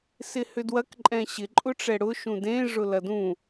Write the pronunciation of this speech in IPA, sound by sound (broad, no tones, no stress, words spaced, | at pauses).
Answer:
sɪhʏdwɐk ǃʼɛ̃ɕɪ ǃʼʊʈ͡ʂɛɽʊ ʃũdẽ ʐʊlɐdũ